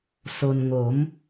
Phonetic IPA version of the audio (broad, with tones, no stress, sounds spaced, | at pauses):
s o˩ n ŋ o˩˧ m